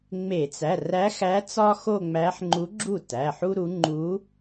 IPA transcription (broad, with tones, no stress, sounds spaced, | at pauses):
ŋ͡m e˧˩˧ t͡s æ˩˧˩ r æ˧˥ x æ˧˥ t͡s ɒ˥ x o˥˧ ŋ͡m æ˧˥ ħ ŋ͡ǃ u˧˥ ɡ͡ǁ u˥˩ t æ˩˧˩ ħ u˥ ɾ u˧˥ ŋ͡ǃ u˧˥